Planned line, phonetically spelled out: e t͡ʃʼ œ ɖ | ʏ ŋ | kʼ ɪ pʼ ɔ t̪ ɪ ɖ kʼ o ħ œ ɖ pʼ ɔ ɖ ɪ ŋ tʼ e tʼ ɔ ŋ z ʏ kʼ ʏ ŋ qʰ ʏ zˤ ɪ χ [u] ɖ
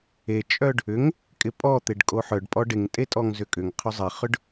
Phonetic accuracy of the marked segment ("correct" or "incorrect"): incorrect